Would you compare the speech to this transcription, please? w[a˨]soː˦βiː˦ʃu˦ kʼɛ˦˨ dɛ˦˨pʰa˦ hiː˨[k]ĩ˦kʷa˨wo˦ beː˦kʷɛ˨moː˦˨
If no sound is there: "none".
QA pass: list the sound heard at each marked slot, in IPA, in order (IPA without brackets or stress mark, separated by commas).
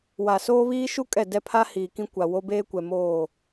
a˨, k